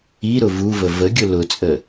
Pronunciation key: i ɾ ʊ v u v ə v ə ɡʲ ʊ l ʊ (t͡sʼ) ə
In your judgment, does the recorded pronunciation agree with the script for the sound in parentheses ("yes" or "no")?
yes